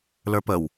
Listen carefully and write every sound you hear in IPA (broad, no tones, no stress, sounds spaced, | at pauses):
l ə˞ p ə w